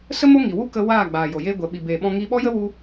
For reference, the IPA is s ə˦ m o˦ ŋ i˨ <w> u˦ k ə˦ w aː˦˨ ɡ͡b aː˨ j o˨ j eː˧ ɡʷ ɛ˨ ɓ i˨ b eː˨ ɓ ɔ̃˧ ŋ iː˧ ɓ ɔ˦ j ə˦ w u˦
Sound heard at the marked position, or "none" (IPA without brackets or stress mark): w